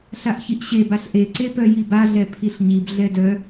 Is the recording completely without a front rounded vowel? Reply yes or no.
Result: no